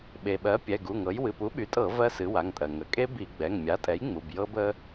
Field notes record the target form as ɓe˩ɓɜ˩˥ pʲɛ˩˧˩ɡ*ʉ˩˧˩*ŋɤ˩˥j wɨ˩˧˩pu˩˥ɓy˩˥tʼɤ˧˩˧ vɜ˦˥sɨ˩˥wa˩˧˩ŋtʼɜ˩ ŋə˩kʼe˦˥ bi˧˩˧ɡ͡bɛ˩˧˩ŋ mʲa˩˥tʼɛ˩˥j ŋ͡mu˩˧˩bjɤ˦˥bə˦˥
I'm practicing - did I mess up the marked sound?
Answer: yes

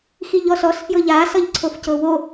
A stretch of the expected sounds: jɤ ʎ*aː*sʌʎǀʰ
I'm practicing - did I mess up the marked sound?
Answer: no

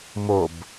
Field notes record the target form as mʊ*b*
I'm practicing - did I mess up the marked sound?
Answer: no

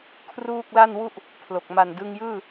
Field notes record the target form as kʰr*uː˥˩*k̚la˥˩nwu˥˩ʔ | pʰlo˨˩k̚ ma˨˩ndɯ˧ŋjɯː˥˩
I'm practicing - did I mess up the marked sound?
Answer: no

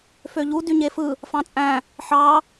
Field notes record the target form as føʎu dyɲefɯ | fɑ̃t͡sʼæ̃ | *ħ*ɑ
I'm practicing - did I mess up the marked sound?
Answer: no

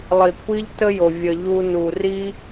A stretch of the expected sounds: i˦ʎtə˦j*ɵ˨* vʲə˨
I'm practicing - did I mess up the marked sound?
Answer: yes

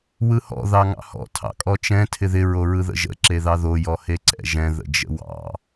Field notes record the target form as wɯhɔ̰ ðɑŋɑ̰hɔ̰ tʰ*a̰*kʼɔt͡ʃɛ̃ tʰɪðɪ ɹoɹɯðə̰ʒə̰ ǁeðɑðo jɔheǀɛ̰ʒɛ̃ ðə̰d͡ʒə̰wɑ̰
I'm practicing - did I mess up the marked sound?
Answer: yes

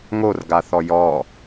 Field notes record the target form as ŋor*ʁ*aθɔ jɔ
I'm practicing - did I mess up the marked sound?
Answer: yes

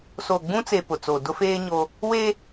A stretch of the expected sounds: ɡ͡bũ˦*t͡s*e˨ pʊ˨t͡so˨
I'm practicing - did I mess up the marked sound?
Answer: no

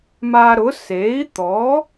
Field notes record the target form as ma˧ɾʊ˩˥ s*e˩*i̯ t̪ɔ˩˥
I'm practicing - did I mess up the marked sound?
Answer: yes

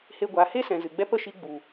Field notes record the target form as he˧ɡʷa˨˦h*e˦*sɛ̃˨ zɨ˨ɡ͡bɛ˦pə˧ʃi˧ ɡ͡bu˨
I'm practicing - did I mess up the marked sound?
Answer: no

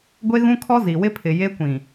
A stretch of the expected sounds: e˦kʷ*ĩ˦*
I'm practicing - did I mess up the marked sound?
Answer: yes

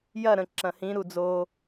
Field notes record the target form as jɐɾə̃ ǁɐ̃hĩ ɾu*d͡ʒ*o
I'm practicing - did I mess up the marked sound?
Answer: yes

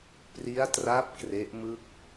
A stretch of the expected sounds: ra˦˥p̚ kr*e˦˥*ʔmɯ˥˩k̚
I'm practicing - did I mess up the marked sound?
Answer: no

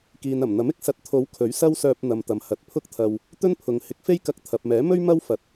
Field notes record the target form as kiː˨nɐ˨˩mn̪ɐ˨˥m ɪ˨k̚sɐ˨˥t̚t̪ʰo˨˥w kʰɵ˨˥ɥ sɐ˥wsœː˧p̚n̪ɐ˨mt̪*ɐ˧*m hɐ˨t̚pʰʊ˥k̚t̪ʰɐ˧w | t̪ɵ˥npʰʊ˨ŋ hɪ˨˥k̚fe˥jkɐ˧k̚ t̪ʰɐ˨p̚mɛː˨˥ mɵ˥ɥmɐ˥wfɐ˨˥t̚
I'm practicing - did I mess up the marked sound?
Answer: yes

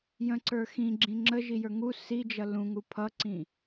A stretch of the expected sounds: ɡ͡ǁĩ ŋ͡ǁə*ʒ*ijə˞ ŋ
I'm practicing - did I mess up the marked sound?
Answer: no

